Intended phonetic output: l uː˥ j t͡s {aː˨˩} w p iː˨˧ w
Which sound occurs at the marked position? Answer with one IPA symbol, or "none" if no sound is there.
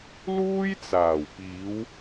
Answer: aː˨˩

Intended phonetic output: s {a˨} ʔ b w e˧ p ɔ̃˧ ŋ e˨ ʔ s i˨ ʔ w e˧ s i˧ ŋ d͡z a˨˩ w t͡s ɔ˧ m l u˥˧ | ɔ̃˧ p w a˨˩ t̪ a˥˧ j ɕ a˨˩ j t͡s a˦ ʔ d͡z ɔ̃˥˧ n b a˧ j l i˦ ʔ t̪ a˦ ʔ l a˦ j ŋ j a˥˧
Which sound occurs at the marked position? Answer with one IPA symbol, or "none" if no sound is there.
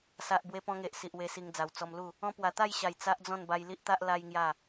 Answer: a˨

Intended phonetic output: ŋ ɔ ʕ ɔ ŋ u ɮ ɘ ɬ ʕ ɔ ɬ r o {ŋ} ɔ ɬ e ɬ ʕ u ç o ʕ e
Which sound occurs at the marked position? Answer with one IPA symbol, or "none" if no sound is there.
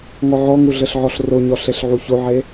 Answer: ɲ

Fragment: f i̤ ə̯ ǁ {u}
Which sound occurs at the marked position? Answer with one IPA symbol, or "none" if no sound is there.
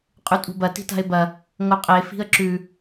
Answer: ʉ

